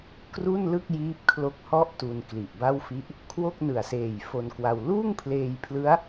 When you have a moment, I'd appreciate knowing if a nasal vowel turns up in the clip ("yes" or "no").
no